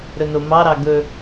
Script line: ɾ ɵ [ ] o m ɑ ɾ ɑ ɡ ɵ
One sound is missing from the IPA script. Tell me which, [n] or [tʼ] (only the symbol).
n